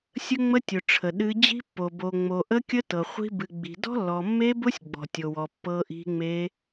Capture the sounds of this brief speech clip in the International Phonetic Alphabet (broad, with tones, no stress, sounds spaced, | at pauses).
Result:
sʲ ə˦˥ ŋ͡m ə˦˥ tʲ ʊ˨ ʈ͡ʂʰ ə˨ ɗ ɨ˦˥ d͡ʑ i̤˦˥ pː o˨ b o˨ ŋ͡m o˨ ʔ ə˦˥ kʲ ə˦˥ t ɤ˨ χʷ i̤˦˥ b ɨ˨ ɡ͡b i̤˨ d ɔ̤˦˥ lː ɔ˨ mː e˦˥ b ʊ˦˥ sʲ ɡ͡b ɔ̤˨ tʲ o˨ w ɔ˨ pː ɤ˦˥ ʔ i̤˦˥ ŋ͡m e˦˥